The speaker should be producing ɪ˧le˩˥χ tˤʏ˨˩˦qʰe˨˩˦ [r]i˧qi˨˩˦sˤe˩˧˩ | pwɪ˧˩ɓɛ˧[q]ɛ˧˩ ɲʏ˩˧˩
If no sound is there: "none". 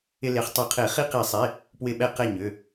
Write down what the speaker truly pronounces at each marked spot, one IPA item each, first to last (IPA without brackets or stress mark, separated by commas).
χ, q